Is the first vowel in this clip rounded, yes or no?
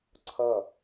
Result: no